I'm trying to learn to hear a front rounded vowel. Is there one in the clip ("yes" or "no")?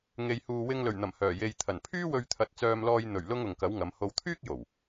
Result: yes